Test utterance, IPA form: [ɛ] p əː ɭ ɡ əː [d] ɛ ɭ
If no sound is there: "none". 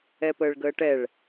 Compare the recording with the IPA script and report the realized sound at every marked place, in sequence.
ɛ, ʈ

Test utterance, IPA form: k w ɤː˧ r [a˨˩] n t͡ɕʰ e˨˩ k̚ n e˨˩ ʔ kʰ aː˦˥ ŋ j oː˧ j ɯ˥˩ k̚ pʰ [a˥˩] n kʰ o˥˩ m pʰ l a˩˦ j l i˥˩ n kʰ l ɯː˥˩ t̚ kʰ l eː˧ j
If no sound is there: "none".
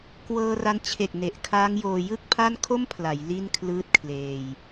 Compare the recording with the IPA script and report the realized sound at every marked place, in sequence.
a˧, a˥˩

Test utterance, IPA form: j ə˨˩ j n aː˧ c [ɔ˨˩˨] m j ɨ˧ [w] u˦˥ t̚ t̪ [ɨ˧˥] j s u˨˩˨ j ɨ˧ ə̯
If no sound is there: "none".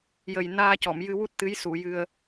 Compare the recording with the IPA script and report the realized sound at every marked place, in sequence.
ɔ˨˩˨, w, ɨ˧˥

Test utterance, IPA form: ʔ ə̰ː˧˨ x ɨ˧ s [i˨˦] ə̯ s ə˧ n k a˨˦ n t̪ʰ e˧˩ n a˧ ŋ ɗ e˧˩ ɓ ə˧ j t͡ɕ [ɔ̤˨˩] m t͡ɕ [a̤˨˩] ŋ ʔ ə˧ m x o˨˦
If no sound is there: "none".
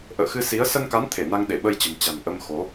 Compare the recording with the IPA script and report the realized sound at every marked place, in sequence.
i˨˦, ə̤˨˩, a̤˨˩

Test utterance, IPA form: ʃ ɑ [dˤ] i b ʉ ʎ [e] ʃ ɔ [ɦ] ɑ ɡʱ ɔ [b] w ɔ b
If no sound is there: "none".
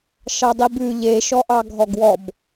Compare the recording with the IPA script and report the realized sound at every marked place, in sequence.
dˤ, e, ʔ, ɡ

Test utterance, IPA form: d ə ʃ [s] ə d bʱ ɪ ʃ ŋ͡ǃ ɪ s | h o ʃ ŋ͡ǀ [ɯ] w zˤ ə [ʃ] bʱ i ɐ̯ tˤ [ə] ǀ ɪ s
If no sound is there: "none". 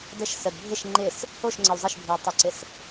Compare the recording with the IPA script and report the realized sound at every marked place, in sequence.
s, ə, ʃ, ə

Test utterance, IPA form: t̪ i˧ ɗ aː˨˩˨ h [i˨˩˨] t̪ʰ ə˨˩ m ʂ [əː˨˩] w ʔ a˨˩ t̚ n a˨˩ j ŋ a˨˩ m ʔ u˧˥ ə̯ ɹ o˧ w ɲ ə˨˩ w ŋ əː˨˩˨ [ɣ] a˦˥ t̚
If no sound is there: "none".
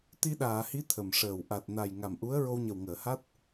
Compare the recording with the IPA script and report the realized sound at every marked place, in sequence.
i˧˥, əː˨˩, h

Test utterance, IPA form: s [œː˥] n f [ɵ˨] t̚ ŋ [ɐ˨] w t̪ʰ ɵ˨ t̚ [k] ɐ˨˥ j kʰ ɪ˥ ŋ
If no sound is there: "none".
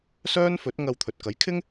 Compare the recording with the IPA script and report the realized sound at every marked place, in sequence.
œː˥, ɵ˨˥, ɐ˧, k

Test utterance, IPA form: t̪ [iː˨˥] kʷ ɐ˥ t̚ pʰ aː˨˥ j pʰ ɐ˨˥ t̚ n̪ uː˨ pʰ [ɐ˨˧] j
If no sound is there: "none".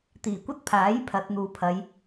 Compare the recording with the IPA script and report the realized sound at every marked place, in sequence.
iː˨˩, ɐ˨˧

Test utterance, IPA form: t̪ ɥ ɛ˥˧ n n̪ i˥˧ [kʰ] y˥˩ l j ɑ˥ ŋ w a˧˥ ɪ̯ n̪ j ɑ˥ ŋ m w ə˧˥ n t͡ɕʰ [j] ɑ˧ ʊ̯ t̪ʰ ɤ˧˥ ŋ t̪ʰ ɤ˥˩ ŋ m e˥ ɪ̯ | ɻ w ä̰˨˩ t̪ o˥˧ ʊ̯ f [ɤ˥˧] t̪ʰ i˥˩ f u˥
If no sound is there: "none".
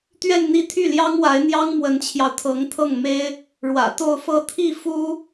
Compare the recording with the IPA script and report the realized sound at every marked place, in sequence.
t̪ʰ, j, ɤ˥˧

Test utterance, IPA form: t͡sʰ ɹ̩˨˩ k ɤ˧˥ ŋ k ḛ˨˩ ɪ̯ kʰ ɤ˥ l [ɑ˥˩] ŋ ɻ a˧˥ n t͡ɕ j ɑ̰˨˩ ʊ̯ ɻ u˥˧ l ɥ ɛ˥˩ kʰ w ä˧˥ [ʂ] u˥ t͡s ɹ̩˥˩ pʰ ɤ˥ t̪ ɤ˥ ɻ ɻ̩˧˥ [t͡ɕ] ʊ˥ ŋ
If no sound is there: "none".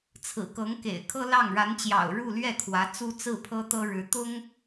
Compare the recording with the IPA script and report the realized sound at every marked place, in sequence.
ɑ˥˩, t͡s, t̪

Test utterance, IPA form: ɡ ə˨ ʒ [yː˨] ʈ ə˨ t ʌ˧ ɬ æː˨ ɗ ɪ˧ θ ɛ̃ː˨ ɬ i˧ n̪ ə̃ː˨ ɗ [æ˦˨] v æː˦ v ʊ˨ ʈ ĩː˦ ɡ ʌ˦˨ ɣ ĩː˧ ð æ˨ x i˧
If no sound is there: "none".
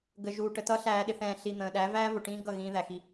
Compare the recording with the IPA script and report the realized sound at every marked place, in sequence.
uː˨, æ˨˦

